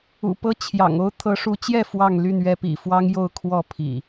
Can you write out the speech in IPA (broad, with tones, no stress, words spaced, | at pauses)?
ṵ˨˩pɤ˦t͡ɕʰjɑ̰˨˩ŋ o˦ʊ̯t̪ʰɤ˨˦ʂu˨˦t͡ɕjɛ˥˨ fwɑ˥˨ŋly˥˨nɥɛ˦pḭ˨˩ fwɑ˦ŋ jo˥˨ʊ̯ kʰwɔ˥˨pʰḭ˨˩